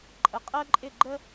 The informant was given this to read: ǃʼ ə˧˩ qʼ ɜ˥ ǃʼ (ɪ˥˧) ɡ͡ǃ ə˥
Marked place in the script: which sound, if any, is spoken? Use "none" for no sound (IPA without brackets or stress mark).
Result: ɪ˥˧